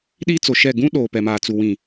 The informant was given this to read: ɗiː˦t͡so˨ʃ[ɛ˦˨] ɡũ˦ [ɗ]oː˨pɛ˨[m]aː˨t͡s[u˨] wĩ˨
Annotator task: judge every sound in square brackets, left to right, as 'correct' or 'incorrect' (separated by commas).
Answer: correct, correct, correct, correct